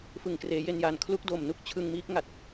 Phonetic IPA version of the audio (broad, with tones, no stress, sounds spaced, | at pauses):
f ɯ˨˩ ŋ k r eː˩˦ j e˧ n j aː˨˩ n kʰ l u˦˥ k̚ d oː˨˩ m n u˥˩ k̚ t͡ɕʰ ɯ˧ ŋ m iː˦˥ k̚ ŋ a˨˩ t̚